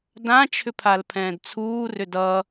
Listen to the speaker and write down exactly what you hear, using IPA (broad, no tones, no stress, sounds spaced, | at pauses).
d ã t͡ʃʰ ʏ pʰ a l pʰ ɛ̃ː d t͡sʰ uː r ʏ d ʌ